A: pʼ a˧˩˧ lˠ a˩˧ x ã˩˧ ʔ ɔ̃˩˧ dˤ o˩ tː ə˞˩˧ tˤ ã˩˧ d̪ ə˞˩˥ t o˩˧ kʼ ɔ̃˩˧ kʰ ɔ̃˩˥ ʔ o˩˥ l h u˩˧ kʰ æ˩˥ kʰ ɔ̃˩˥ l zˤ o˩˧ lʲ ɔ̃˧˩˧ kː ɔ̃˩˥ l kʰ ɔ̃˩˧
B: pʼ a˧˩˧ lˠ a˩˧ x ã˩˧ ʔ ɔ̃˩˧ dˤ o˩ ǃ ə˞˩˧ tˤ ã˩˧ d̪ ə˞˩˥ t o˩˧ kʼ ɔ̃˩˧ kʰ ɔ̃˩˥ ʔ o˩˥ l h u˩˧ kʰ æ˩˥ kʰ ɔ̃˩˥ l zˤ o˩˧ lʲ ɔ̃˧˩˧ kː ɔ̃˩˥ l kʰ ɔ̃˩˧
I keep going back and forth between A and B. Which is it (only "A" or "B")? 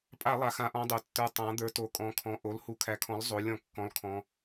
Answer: A